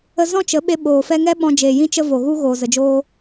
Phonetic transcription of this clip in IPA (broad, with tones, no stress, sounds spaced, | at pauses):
ə˧ z ɔ̃˦ t͡ʃ ə˨˦ ɓ e˧ ɓ oː˨ f ɛ˧ ŋ ɛ˦ ɓ ɔ̃˧ d͡ʒ eː˨ j ĩ˧ t͡ʃ ə˧ v o˨ ɣ u˧ ɣ oː˨ z ə˨ d͡ʒ oː˧